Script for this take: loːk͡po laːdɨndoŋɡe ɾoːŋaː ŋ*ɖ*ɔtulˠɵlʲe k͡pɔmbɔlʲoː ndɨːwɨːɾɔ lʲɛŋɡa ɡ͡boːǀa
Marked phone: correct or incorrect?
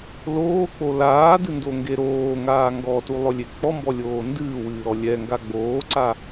incorrect